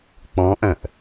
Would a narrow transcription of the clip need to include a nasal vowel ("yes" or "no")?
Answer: yes